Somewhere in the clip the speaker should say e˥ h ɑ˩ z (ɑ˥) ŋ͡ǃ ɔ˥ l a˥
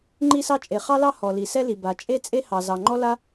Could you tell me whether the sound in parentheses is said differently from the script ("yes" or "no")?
yes